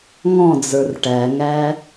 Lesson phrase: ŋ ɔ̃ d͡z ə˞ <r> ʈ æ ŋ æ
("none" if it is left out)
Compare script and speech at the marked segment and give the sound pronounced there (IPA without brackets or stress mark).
r